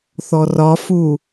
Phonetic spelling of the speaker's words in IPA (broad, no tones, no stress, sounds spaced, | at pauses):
θ ɔ r ɒ f u